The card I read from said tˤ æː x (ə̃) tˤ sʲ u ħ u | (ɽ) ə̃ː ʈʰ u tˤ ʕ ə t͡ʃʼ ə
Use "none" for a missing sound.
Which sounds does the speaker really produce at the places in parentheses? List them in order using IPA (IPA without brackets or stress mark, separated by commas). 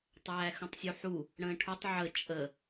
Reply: ə̃, ɽ